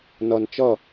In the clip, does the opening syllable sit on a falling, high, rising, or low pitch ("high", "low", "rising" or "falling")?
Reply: low